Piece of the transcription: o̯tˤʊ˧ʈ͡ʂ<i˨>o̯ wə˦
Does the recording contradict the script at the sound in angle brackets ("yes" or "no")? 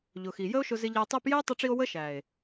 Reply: yes